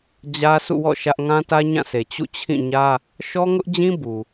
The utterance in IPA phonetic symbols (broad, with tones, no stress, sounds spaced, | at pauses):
d͡ʑ ä˦ sʰ ṵ˦˨ w ɔ̰˦˨ ʃ ä˦ ʔ ŋ ã˦ t ä˦ ɲ ã˦˨ sʰ e˨ t͡ɕ ṵ˦˨ t͡ɕʰ ĩ˦˨ ɲ ä˦ | ʃ ɔ˦ ŋ ʊ˦ ʔ d͡ʑ ĩ˦ b u˨